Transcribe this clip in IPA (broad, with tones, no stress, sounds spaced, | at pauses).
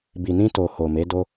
b i˨ n ĩ˧ t o˨ h o˨ m e˨˦ d o˦